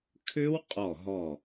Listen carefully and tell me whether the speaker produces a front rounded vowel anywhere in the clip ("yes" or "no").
yes